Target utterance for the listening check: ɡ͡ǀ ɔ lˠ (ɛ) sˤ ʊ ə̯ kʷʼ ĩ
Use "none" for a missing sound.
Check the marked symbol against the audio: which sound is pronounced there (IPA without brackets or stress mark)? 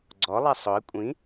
ɛ